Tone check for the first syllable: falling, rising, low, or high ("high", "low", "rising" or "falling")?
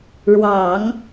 low